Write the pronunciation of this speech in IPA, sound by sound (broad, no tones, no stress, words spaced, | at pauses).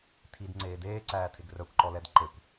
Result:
tʰidŋ͡ǀeː deːǀæːtʰeɡ rœkʷǃɔlɛd ǃekʷ